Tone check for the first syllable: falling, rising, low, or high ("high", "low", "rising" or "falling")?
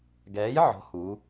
rising